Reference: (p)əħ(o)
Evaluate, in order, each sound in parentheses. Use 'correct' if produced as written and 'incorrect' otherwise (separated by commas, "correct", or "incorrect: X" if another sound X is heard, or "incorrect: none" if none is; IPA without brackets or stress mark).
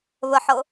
incorrect: β, incorrect: ɤ